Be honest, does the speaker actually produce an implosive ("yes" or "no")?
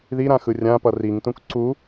no